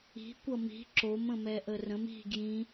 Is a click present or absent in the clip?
present